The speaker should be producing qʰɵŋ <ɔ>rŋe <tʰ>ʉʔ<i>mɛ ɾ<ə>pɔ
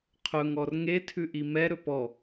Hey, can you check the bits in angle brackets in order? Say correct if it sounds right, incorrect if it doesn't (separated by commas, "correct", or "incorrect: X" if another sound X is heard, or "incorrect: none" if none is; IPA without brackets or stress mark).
correct, correct, correct, incorrect: ɵ